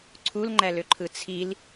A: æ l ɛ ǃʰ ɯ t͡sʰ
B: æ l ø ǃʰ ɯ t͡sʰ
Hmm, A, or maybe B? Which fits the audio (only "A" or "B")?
B